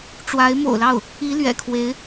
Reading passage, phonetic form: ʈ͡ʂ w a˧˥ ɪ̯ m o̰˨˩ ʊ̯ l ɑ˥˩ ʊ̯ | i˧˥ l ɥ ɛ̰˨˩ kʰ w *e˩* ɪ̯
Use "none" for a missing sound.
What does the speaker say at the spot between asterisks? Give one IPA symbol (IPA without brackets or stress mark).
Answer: e˧˥